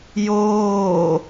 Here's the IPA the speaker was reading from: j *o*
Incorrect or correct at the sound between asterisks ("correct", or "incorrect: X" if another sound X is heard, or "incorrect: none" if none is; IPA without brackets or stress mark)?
incorrect: oː